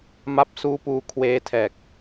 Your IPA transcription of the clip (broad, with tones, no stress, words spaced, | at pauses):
ma˦˥p̚suː˦˥puː˧ kʰweː˦˥tʰɛː˨˩k̚